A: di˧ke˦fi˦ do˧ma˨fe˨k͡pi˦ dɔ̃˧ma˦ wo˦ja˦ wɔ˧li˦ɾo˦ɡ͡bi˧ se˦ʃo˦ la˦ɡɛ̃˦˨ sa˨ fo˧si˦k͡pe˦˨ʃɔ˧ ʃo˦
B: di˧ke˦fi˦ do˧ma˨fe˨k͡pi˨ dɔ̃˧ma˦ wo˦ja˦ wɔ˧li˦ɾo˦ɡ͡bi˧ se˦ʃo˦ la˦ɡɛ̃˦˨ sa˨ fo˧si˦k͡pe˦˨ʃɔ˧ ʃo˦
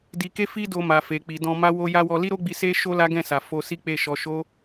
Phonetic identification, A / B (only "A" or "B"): B